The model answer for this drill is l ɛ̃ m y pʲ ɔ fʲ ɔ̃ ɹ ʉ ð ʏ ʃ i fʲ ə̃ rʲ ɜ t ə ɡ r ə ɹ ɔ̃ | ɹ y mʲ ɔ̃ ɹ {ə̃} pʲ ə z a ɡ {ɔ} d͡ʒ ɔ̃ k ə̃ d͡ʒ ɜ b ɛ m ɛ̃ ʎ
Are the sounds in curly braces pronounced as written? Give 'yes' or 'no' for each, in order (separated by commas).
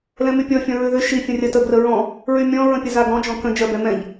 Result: yes, no